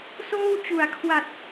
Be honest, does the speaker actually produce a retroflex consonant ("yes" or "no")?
no